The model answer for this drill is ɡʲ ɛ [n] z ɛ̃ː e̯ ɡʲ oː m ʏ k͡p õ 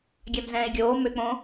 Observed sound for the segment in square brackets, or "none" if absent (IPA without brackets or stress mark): m